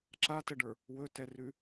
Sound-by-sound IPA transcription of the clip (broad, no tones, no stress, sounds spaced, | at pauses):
ǁ a t ə ɖ ə˞ | w ɵ t ɛ r ʉ